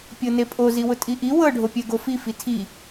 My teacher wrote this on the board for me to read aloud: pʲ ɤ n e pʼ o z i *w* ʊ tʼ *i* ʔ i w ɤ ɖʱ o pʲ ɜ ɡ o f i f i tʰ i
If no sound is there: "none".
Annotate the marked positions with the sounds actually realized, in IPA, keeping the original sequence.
w, i

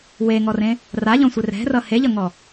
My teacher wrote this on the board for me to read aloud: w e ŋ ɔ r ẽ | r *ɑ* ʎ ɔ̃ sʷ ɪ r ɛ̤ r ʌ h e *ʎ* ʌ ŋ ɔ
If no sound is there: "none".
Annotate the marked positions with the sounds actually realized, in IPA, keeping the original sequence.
a, ʎ

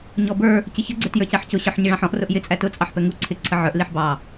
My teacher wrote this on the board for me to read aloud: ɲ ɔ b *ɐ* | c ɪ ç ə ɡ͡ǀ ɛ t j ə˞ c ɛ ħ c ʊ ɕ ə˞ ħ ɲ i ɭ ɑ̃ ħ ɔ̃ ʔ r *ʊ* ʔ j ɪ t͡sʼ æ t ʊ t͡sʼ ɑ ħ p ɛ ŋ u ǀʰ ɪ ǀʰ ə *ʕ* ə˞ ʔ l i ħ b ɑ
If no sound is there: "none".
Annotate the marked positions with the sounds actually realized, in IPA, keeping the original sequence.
ə˞, ʊ, ʕ

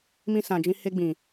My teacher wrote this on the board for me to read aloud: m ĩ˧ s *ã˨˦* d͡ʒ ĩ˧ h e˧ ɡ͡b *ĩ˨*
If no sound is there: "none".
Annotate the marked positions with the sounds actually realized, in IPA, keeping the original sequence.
ã˨, ĩ˨

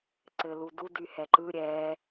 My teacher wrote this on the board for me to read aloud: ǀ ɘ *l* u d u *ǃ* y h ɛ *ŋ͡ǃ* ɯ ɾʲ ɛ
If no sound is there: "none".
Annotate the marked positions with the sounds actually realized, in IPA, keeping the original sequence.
l, d, ǃ

